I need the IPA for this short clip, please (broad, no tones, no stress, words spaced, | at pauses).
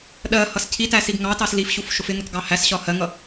ɗɜ hʌscʰitæ siɡŋɑtɑs lifɕuf ʃʊfɪŋʊt ɡɑhæsɕɒ hɜŋʌ